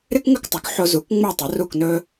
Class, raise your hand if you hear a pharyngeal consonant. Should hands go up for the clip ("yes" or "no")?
yes